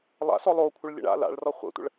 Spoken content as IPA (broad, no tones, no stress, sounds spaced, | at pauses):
lˠ a̰ s ɔ lˠ o kʷʰ ɘ ɭ lʲ ə̰ ɳ a̰ l a̰ ɭ r ɔ χʷ ə̰ tʷ ə̰ ɭ